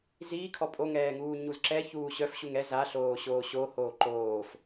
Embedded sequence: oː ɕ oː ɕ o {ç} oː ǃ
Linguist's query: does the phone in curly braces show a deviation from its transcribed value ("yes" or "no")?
yes